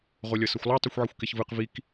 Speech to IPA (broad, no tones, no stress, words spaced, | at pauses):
ʁolʲʌsʌxʷlˠo tˤɯxʷʕixʷkeçvɯq vik